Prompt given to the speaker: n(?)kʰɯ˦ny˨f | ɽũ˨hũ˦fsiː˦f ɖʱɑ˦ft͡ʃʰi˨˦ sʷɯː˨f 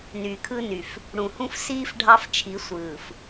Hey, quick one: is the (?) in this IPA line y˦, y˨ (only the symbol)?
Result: y˨